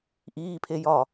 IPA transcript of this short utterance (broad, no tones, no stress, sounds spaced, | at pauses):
ʔ iː pʰ e j ɒ